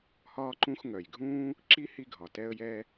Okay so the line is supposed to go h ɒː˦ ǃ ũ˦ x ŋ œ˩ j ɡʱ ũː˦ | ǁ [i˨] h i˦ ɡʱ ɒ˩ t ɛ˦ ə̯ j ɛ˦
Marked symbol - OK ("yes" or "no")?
no